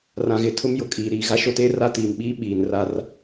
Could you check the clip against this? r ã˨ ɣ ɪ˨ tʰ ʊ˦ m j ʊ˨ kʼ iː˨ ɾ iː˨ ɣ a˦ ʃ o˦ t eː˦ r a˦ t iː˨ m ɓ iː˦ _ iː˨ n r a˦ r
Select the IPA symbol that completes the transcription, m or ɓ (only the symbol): ɓ